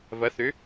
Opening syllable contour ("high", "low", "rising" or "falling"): rising